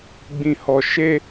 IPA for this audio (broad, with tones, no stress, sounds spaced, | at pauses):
ɡ͡b ĩ˨ h ɔ˨ ʃ e˧